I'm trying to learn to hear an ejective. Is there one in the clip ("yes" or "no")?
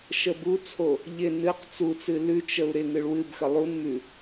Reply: no